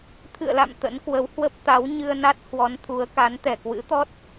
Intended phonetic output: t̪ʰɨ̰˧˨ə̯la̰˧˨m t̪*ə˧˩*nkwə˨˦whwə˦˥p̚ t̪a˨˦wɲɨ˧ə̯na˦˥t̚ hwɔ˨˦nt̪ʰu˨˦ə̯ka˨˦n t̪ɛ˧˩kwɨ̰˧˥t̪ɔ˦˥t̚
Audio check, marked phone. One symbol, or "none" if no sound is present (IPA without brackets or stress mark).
ə̰˧˥